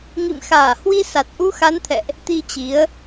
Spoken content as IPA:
ŋ ḭ˧˨ m x aː˧˩ h w i˧ s a˨˩ t̚ ʔ u˧ x a˨˦ n t̪ʰ ɛ̰˧˨ ʔ | t̪ i˧ t͡ɕ i˨˦ ə̯

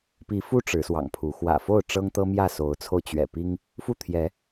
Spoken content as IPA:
p i˨˦ f u˦ ʈ͡ʂ ɻ̩˨˦ s w ɑ̰˨˩ ŋ pʰ u˨˦ x w ä̰˨˩ f o˥˨ ʊ̯ ʈ͡ʂ ɤ˦ ŋ t̪ ɤ˦ m j ä˥˨ s o˨˦ ʊ̯ t͡sʰ o˧ ʊ̯ t͡ɕ ɥ ɛ̰˨˩ p i˦ ŋ | f u˥˨ t̪ʰ j ɛ˨˦

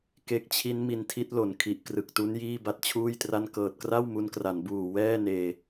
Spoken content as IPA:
k e˦˥ k̚ t͡ɕʰ i˦˥ n m i˧ n tʰ i˦˥ t̚ l o˨˩ n kʰ i˨˩ ʔ k r ɯ˨˩ k̚ t u˦˥ n j iː˥˩ b a˥˩ t̚ t͡ɕʰ uː˥˩ j t r a˥˩ n k ɤː˨˩ t̚ k r a˥˩ w m u˦˥ n k r a˩˦ n b uː˨˩ w ɛː˥˩ n eː˧

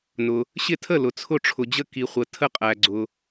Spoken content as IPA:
n ʊ˨ | ɕ ɪ˥˩ tʰ ə˥˩ l ʊ˨ t͡sʰ ʊ˥˩ ʈ͡ʂʰ ʊ˨ d͡ʑ ə˥˩ k i˨ χʷ ə˨ tʰ ə˥˩ qʼ æ˨ ɡ͡ǀ ʊ˨

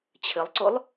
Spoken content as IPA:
t͡ɕʰ ɘ lˠ ǀ o lˠ

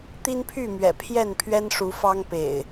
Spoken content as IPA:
t̪ i˦ n pʰ y˥˨ m ɥ ɛ̰˨˩ pʰ j ɛ˥˨ n pʰ ɥ ɛ˦ n ʂ u˨˦ f ɑ˦ ŋ p ḛ˨˩ ɪ̯

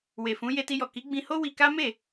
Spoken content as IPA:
w e˨ f ũ˨˦ j e˧ t i˧ j ɔ˨ k i˨˦ ɡ͡b ĩ˧ h o˦ w i˧ k a˦ m e˦˨

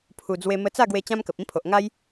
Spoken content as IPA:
pʰ u˨˩ d͡z w e˧ m ə˧ t͡s a˥˧ ɡ w e˧ t͡ɕ ã˦ m k ə˨ p̚ ĩ˦ pʰ o˨ ʔ ŋ a˦ j

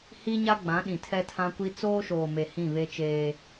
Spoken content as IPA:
h i˦ ɲ a˦ ɡ͡b ã˨˦ ɗ ĩ˨ tʰ ɛ˦ tʰ ã˦ kʷ i˦ t͡s oː˦ ʃ oː˨ m e˨ h ĩ˦˨ β e˦ t͡ʃ eː˦

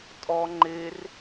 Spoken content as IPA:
tʼ ɔ ŋ͡ǃ e r

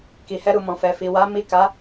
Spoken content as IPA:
k i˨ h ɛ˧ ɾ u˨ m ɔ̃˨ f ɛ˨ f i˨ w a˨˦ m i˦˨ k a˨˦

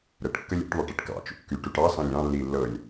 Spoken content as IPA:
ɾ ə ʈ kː ə lʲ ṵ ʈ ðˤ ɯ ʈ ɯ ʈ k ɑ̰ t͡ʃ ṵ kː y ʈ u ʈ ɑ s ɑ̃ lʲ ɑ̃ lː i lː ɤ lʲ

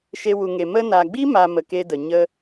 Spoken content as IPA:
ʃ e˦ w u˧ ŋ e˧ m ə˧ n a˨ ɡ͡b i˦ m a˦ m ə˧ k e˦ d ə˨ ɲ ə˦

